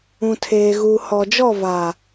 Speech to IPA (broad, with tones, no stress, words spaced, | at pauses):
ũ˨tʰeː˨ ɣuː˨hɔ˨d͡ʒɔ˦˨ va˨